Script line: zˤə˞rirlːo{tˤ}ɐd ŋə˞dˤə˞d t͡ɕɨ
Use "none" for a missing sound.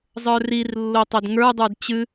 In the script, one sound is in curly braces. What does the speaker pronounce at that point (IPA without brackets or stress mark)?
tˤ